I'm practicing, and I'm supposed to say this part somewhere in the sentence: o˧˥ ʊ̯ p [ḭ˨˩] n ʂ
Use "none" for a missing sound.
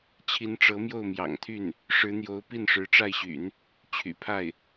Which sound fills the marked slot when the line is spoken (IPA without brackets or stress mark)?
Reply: i˥˩